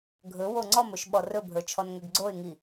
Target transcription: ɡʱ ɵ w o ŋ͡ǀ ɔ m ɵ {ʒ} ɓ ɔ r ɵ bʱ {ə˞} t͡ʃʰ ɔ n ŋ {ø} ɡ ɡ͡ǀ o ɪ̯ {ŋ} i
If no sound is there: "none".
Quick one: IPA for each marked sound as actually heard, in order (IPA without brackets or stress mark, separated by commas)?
ʃ, ə˞, ø, ŋ